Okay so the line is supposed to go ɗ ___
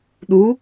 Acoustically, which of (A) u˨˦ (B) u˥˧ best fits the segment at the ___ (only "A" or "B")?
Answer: A